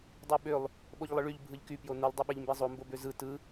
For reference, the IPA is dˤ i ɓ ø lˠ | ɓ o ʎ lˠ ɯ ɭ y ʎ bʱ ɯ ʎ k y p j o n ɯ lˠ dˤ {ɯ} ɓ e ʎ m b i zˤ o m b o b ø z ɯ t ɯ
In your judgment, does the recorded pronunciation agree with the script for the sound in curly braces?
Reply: yes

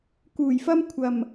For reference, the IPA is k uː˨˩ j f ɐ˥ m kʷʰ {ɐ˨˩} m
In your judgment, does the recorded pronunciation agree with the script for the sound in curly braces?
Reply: yes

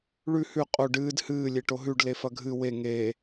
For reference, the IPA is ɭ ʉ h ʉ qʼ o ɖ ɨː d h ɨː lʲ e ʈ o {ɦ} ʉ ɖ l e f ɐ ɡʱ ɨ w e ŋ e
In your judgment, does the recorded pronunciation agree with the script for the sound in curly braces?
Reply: yes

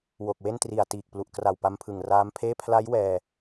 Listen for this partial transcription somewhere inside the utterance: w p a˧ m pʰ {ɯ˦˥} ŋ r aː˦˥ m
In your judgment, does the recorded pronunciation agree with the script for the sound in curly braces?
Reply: no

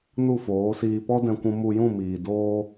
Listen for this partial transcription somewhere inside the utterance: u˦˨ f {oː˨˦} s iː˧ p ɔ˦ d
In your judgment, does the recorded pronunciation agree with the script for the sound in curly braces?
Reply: yes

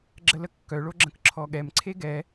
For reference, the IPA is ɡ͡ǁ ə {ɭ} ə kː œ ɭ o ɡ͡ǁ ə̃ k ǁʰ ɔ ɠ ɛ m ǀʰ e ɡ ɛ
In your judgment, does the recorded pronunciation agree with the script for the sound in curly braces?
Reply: no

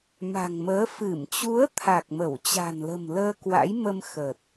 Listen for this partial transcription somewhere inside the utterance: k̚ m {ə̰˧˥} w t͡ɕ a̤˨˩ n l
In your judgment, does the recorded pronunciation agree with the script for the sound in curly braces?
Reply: no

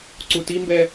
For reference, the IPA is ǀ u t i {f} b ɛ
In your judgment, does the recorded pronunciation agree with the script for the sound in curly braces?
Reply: no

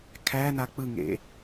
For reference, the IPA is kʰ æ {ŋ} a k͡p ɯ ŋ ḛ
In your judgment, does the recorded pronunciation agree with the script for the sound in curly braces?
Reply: no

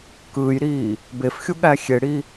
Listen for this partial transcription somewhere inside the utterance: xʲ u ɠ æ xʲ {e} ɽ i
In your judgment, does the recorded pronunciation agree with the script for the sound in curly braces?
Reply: yes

